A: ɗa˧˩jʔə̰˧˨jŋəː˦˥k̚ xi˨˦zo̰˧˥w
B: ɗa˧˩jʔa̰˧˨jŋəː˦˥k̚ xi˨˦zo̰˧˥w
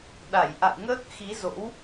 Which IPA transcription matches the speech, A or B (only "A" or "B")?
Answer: B